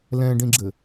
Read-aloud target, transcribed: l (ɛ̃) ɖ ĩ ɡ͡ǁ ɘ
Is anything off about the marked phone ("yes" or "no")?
no